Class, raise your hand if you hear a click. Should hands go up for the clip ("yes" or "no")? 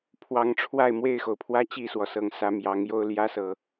no